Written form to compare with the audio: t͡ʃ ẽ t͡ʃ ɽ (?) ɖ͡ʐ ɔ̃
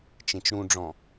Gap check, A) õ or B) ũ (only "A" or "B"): B